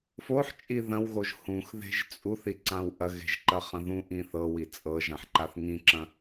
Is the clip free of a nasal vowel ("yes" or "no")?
no